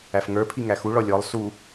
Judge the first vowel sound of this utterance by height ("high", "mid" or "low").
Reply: low